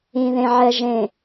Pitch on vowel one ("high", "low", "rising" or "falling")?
low